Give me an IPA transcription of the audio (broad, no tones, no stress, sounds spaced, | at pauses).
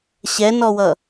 ɕ ɛ n ɔ w ʌ